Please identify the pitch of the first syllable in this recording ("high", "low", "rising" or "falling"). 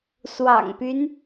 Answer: low